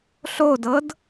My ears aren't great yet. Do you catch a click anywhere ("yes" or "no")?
no